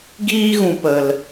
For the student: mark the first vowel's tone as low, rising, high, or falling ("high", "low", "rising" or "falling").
high